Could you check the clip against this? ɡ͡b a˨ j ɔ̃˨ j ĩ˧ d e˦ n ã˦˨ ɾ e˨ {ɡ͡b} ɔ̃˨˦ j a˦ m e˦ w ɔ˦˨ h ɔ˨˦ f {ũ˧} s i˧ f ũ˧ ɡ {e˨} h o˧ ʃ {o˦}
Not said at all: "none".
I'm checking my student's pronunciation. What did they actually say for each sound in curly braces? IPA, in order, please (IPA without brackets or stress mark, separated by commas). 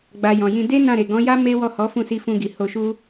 ɡ, ũ˦˨, i˨, u˦